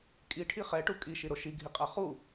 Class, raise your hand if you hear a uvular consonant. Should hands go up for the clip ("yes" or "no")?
yes